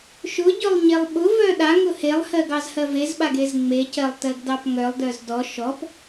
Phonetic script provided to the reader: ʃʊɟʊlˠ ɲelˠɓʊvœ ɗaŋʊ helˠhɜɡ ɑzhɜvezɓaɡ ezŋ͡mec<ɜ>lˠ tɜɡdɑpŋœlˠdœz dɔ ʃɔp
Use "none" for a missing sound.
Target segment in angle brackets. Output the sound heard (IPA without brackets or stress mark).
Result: ɜ